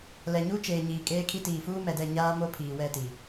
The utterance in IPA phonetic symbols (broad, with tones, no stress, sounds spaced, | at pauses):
l ɛ˨ ɲ uː˦ t͡ʃ eː˨ ɲ iː˨ kʼ eː˦ kʰ i˦ t iː˨ f uː˦ m ɛ˨ d ɛ˦˨ ɲ aː˦ m o˦ pʰ iː˨ w ɛ˦˨ t i˨